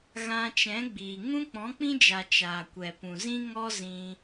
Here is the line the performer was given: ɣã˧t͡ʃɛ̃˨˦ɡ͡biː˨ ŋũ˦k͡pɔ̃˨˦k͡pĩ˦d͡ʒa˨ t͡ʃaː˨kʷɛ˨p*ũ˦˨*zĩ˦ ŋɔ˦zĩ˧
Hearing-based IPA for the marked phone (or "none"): ũ˨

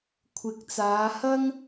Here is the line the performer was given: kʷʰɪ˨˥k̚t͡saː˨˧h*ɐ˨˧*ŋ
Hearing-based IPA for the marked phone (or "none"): ɐ˥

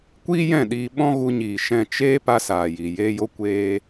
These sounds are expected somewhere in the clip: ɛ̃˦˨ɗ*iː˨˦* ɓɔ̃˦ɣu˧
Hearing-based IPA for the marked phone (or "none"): iː˧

